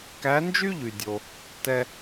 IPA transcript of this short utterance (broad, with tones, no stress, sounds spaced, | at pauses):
k æ˧˥ n d͡ʒ y˥ ʎ y˨ dʲ o˨ | t ɛ˥